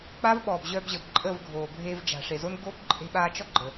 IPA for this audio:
k͡pa˦vɓɔː˨b ʑœ˧bʑə˨b ǃʼə˦˨vɡʱoː˨ bʱeː˧vd͡ʒa̤˨ʂe˨zo˦n ɡo˦b ǃʼe̤˧ɓaː˧t͡ʃɔ˦ ɡ͡ǃə˨

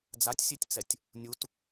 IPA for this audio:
d͡zatʲsʲetʲt͡sɛtʲ | nʲut

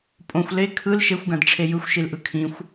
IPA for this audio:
pʼõxʷ le kʰɯl ʃexʷɡãdʈ͡ʂʰe jɯxʷʃilʔɯ kʰĩxʷ

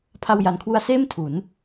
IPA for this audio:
pʰa˧wja˨˩nkʰwu˧a̯seː˥˩m tʰu˩˦n

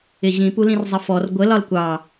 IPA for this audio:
ɪʑĩ pulĩrzˤəfɔr ɡʷə lɒlkʷɑ

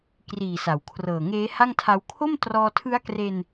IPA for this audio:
kriː˨˩sa˩˦w kʰrɤː˨˩ŋeː˦˥ ha˥˩ŋtʰa˦˥w kʰo˥˩m trɔː˧tʰɯ˦˥a̯kre˧n

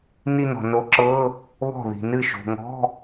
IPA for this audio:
ni˥˧ nɔ̤˨no˧˥ǁɤ˧˥˧ | βɔ̤˥˩ ði̤˨nɨ˥˩ ʃo̤˨ŋɔ̤˧˥˧

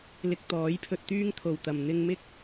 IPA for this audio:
lɪ˧k̚t̪ɔː˨˥jpʰɵ˧t̚ t̪yː˥ŋt̪ʰo˨˩wt̪ɐ˨˩m n̪ɪ˧ŋmɪ˥k̚

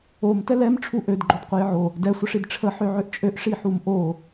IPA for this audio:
om tɛlɛm ʈ͡ʂʰuʔød ɡ͡ǃodqʷɛjʕo | dɛ sʷəʂidʈ͡ʂʰə ħøʕøʔt͡ʃʼøʔ ʂiħumʔo

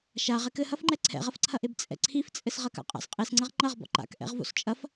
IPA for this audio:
ʃaʁ ɛkɘhɐfŋ͡ǃɛ ǀʰɛ̰ʁɐfǀʰɐʔeb t͡sʼɛ̰ǀʰift͡sʼɘs ʁɐka̰qʼa̰s qʼesŋ͡ǀɐʁ ŋ͡ǃɐʁ bɔ̰ǃa̰k ʔɛ̰ʁvo̰st͡ʃʼɐf

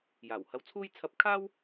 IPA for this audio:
jaː˨˩whɐ˧wt͡sʰuː˥j t͡sʰɐ˧p̚ kʰaː˥w

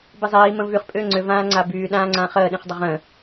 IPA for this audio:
bizˤiː mə̃vyχ pʼʏːŋ͡ǀʏ vãːŋ͡ǀabyː ɗãːŋ͡ǀãχəː ɗĩχdˤəʁə̃

